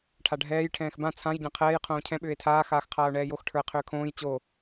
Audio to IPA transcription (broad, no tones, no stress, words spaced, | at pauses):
ʈʰaɖʱɛːj ʈʰɛ̃ːxbã t͡sʰãj ɟãqʰɛːj qʰõːcʰɛ̃ ɓʏːe̯tʰaː xaːxqʰaːo̯ɳɛːjox ʈʰə˞e̯qʰʏːkʰõːj t͡ɕo